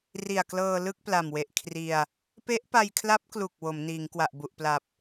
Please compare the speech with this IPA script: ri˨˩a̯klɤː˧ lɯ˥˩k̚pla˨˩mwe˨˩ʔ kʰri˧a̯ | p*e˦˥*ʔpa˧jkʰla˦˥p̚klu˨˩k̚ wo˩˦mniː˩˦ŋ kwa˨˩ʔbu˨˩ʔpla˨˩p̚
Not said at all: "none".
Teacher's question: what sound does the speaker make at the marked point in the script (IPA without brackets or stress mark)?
e˦˥